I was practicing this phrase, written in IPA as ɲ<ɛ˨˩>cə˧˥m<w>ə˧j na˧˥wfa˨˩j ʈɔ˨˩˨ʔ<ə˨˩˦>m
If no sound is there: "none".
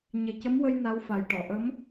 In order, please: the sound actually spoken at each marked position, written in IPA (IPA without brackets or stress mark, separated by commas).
e˨˩, w, ə˧˥